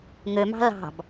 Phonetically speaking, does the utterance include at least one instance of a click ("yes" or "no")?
no